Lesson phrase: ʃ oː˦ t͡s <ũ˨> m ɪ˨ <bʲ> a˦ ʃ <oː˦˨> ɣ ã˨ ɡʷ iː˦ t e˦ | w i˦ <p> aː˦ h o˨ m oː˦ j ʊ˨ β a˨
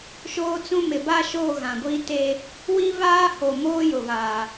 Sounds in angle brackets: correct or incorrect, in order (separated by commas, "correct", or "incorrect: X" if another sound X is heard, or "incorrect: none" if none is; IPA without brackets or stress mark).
incorrect: ũ˦, incorrect: b, correct, incorrect: β